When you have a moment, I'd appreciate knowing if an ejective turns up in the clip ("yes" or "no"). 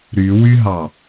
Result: no